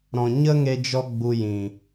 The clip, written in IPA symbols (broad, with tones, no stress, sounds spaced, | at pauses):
ɾ ɔ̃˨ ɲ ə˦ ŋ e˧ d͡ʒ ɔ˧ ɡ͡b u˧ j ĩ˨